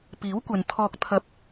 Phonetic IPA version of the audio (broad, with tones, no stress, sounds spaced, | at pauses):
p iː˨˥ w kʷ ɐ˨ n t̪ʰ ɔː˧ k̚ t̪ʰ ɐ˨ p̚